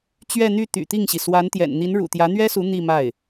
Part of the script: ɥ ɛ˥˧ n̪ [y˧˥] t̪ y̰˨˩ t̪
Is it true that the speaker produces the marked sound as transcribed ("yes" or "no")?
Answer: no